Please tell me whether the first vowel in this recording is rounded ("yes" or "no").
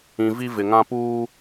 no